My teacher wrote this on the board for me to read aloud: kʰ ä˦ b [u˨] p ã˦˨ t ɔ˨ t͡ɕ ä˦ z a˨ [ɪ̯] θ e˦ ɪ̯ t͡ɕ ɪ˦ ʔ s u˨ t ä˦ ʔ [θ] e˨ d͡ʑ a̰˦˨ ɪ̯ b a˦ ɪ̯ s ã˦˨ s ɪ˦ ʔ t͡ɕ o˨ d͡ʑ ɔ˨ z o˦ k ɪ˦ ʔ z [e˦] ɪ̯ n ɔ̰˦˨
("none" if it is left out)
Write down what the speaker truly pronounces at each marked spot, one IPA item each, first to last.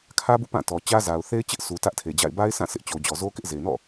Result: ṵ˦˨, ʊ̯, tʰ, e˨

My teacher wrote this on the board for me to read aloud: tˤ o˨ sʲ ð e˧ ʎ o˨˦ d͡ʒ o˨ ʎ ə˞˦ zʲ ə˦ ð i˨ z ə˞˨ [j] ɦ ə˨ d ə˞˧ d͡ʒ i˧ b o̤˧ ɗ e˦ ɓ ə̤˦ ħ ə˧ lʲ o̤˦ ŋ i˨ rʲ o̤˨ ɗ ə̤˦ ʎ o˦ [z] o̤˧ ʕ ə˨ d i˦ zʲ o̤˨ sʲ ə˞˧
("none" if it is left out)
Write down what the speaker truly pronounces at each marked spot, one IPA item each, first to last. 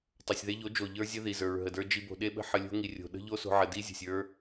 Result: ɹ, s

